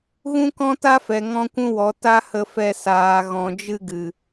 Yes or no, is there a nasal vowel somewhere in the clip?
yes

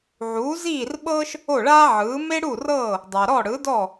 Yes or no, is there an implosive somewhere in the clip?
yes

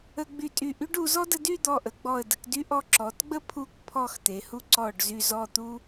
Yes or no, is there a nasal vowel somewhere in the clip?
no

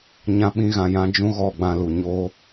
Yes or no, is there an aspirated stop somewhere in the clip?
no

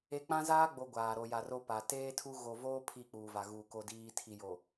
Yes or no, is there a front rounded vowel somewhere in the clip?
no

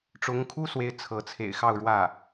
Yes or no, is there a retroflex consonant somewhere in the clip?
yes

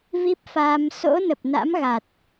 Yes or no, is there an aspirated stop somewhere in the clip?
no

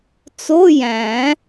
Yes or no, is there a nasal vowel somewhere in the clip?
yes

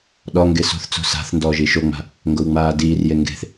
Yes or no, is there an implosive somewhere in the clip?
yes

